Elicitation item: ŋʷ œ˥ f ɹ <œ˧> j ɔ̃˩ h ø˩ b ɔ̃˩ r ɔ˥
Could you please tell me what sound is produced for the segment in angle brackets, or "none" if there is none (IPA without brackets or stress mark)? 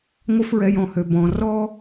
ɛ˧